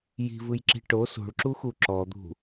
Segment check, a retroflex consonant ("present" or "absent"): present